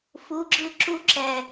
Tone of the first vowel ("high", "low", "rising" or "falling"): rising